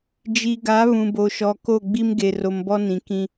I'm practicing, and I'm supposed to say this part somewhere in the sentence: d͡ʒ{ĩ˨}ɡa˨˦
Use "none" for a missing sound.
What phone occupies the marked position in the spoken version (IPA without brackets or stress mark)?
i˨